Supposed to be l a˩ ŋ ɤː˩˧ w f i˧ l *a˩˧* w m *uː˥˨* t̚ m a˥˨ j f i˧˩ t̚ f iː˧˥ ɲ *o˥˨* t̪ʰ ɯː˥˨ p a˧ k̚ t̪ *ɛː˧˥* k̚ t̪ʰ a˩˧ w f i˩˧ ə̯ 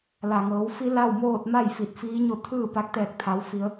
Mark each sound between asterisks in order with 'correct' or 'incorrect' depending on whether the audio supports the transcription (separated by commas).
incorrect, incorrect, correct, incorrect